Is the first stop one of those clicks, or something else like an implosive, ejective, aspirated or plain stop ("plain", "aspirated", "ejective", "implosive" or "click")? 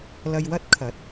plain